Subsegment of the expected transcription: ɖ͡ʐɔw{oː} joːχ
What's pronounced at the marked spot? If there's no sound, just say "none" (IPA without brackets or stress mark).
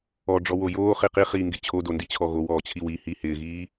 o